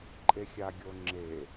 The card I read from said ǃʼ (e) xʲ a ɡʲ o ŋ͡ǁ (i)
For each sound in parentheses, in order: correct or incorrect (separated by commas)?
correct, incorrect